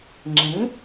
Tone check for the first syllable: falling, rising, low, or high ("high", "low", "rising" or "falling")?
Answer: rising